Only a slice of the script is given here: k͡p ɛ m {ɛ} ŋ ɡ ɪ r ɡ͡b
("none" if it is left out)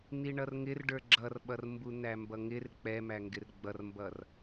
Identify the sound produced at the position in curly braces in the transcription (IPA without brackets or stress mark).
æ